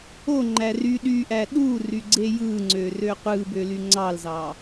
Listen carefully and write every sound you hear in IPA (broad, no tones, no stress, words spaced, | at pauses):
oŋ͡ǃæ ry ɗyʔæ ɗury ɡ͡ǀejɯŋ͡ǀø røqʷɯbø lyŋ͡ǀɑlzɑ